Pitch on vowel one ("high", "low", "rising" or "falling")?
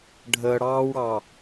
low